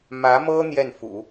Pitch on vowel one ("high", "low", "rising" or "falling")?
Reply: rising